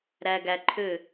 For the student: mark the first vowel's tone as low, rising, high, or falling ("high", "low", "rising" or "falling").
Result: low